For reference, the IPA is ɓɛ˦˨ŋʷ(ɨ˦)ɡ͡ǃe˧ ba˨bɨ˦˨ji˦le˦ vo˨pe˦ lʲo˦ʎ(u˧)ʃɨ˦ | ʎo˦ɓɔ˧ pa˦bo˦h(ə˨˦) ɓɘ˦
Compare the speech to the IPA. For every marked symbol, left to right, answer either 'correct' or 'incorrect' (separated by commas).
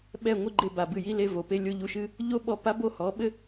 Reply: incorrect, correct, incorrect